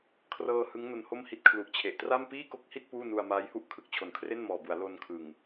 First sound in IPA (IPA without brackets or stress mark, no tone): kʰ